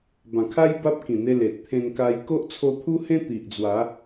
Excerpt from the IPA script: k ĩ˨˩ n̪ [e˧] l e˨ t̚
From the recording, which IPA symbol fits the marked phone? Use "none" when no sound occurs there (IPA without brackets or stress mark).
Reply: e˧